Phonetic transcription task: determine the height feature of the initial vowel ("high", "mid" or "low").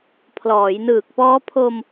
mid